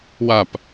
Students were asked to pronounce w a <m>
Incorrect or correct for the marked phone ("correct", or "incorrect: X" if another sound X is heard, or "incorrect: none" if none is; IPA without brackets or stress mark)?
incorrect: p